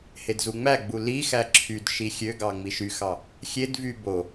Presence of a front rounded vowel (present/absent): present